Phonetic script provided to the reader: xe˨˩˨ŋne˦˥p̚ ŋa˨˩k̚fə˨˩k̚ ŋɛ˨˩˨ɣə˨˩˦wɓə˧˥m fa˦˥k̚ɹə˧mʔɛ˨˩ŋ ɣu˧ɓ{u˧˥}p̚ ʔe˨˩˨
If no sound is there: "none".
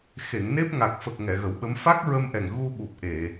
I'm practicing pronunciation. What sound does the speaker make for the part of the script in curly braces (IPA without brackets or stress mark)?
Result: u˨˩